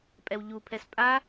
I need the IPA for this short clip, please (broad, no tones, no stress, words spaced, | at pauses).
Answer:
pʼɛwʎupʰɛs pʼa